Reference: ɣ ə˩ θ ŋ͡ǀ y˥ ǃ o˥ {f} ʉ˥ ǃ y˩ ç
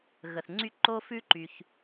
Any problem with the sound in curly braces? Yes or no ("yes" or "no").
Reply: no